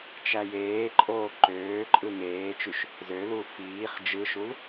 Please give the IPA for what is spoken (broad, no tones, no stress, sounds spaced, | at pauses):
t͡ʃ æ j eː ǃʼ oː ǃ øː ǃʼ ɯ ŋ eː t͡ʃ y ʃ | z ø l u f iː χ d͡ʒ ɯ ʃ u l